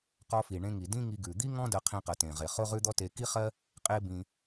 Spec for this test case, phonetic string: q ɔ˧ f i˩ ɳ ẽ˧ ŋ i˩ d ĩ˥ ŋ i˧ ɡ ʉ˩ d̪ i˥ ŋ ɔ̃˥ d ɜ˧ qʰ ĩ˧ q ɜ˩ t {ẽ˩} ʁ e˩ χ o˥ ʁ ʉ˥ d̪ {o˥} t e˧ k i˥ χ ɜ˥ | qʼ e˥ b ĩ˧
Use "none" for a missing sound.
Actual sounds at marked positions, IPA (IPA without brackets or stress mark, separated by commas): ẽ˩, ɔ˥